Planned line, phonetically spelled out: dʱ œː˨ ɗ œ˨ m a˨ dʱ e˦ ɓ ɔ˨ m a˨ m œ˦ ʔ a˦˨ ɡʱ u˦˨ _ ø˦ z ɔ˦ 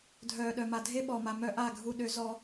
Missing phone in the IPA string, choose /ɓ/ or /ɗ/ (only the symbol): ɗ